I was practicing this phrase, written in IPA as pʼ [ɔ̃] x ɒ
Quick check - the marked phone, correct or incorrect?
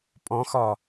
correct